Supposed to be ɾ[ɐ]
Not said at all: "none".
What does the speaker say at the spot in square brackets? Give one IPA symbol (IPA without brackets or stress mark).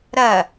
ɐ